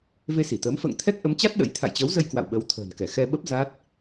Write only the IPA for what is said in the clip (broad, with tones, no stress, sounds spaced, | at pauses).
v e˧ s i˧˩ t̪ əː˨˦ m f ə̰ː˧˨ ŋ t̪ʰ ɛ˦˥ k̚ ʔ ə˨˦ m t͡ɕ a˦˥ t̚ ɗ ə̰˧˥ j t̪ʰ a̰˧˨ j t͡ɕ əː˨˦ w z ə˧ j k w a̰˧˨ w ɓ ə˨˦ w t̪ʰ ə̤ː˨˩ n k ɛ˧˩ x ɛ˧ ɓ ə˦˥ p̚ z a˦˥ t̚